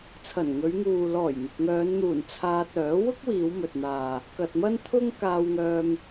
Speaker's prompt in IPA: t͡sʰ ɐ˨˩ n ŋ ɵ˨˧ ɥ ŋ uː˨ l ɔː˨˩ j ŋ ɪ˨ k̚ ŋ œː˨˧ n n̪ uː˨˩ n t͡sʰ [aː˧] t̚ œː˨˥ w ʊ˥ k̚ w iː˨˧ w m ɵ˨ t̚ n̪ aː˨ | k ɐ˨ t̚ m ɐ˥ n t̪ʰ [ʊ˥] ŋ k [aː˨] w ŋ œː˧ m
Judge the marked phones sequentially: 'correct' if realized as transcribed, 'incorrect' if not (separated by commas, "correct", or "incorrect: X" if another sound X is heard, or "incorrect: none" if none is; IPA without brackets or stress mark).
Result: correct, correct, incorrect: aː˧